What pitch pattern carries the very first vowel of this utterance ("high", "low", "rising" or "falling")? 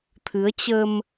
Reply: rising